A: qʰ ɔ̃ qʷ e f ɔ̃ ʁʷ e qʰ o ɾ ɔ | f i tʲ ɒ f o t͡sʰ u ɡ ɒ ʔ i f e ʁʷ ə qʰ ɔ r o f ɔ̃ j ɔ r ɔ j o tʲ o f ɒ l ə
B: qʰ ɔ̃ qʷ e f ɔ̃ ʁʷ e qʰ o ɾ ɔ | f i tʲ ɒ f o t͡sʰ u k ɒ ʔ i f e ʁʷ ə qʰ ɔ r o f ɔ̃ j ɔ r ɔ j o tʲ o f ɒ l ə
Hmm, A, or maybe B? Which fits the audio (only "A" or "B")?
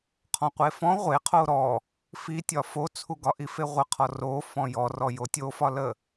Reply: A